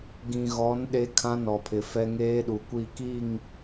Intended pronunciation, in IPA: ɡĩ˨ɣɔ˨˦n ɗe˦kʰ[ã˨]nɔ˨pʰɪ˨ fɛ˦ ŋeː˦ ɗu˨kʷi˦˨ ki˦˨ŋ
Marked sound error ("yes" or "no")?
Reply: yes